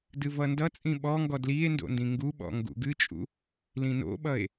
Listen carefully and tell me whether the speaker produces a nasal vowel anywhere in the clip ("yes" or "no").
yes